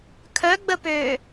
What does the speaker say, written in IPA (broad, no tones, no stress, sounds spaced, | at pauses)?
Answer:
kʰ œ ɡ͡b ə p øː